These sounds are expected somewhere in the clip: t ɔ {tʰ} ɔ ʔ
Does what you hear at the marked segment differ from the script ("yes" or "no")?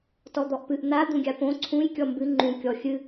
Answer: yes